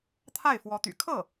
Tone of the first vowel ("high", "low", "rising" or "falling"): falling